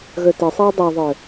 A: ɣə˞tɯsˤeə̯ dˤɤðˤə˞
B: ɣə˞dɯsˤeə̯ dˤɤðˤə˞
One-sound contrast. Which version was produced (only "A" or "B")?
A